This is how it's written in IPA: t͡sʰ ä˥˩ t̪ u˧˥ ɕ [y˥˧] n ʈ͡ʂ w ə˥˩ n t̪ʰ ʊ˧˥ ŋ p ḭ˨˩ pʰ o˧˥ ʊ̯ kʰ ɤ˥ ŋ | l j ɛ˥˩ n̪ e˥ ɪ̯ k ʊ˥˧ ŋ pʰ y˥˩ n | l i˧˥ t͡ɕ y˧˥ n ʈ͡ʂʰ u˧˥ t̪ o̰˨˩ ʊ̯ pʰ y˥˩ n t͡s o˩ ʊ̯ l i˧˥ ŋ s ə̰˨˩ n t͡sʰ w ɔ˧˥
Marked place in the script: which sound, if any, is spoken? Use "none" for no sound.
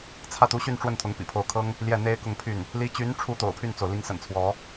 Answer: y˥˧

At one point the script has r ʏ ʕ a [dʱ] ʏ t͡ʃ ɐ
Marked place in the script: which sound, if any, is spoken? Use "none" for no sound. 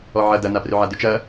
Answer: d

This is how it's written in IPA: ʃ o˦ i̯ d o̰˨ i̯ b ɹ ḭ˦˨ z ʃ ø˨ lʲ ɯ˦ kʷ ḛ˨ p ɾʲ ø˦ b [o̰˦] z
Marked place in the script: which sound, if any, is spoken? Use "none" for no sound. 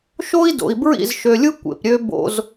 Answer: o̰˦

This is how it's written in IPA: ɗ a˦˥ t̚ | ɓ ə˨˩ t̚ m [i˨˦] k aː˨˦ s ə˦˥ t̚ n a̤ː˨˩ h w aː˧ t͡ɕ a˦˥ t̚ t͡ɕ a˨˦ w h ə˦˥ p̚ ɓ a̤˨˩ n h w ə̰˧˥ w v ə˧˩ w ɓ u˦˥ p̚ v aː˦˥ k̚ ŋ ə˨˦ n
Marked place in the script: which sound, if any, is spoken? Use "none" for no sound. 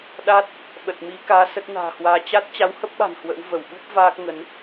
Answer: i˨˦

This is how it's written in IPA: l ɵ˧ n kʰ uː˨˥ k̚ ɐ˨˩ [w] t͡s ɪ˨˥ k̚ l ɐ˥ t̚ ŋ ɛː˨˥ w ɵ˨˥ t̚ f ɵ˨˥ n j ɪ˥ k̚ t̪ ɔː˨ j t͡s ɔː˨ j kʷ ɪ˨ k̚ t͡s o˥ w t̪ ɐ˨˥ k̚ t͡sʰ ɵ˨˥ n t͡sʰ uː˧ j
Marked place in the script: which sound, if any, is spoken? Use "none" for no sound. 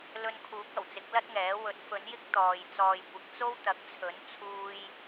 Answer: w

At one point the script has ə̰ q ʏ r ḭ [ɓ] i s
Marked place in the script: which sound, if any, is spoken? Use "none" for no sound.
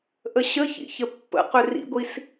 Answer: ɡʷ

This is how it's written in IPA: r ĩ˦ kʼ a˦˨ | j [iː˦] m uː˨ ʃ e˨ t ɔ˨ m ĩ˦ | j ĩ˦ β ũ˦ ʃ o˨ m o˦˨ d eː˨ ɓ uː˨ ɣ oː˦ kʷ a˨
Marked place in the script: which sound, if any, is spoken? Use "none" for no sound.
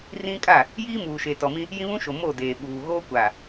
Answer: iː˦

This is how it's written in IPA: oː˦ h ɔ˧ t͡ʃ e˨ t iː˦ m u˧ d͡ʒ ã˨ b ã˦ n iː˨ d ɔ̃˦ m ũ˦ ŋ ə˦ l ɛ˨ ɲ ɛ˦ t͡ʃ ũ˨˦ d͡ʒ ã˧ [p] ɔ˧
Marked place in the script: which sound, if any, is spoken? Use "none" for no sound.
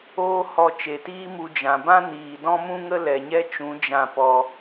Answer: p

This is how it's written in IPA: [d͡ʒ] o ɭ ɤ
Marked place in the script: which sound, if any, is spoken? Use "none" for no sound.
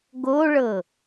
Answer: ɡ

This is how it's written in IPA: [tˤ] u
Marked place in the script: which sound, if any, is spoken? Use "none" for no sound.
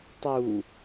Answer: tˤ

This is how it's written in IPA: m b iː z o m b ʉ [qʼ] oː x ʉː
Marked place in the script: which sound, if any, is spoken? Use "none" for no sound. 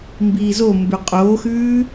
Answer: qʼ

